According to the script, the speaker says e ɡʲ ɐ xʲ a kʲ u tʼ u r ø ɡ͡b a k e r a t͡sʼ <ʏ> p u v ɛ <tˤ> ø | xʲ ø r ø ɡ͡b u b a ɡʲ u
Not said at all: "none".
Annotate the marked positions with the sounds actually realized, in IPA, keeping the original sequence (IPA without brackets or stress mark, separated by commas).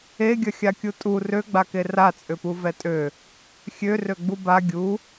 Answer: ʏ, tʼ